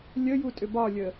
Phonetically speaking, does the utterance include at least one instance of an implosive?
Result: no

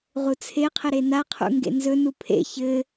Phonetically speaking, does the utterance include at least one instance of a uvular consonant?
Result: yes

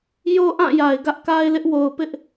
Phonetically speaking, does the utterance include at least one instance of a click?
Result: no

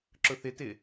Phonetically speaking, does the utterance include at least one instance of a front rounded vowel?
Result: no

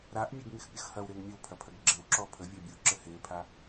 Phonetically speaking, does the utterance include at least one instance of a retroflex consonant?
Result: no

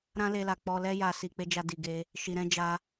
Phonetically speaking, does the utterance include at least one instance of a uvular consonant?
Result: no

